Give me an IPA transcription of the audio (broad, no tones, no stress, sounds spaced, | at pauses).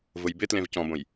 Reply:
v ʊ j b ɪ t l ẽ v c ɔ̃ b õ j